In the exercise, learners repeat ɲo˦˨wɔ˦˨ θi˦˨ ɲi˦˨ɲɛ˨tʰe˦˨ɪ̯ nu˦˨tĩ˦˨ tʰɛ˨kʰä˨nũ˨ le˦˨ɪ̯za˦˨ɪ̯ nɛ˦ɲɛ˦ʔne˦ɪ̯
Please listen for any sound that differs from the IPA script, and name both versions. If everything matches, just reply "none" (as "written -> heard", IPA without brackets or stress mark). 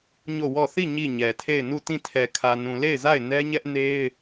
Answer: none